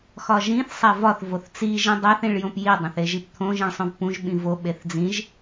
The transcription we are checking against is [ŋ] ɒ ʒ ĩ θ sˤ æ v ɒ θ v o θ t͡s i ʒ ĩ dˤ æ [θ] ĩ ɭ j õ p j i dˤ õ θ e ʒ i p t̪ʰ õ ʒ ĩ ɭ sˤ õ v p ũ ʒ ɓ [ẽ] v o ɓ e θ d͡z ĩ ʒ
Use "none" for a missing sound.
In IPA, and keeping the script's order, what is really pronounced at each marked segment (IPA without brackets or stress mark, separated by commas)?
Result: x, θ, ĩ